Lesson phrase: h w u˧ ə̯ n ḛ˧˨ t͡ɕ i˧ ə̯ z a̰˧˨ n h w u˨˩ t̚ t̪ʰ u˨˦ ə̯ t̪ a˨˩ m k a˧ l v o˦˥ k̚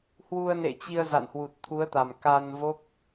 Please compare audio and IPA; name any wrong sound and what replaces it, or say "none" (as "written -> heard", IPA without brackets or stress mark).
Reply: l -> n